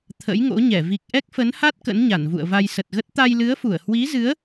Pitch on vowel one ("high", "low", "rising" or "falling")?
rising